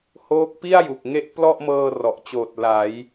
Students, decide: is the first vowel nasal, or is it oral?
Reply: oral